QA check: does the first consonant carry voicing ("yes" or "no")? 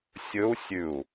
no